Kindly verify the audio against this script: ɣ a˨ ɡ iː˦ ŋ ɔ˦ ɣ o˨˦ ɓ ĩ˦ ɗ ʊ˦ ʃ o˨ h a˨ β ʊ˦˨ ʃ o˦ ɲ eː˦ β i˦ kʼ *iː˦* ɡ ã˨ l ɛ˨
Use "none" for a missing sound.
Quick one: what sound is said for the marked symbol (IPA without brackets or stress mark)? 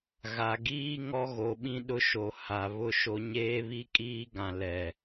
iː˦